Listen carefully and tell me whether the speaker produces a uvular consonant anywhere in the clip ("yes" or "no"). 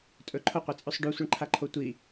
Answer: yes